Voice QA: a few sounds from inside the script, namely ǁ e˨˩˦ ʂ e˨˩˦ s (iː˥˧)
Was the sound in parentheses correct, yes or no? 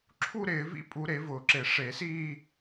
yes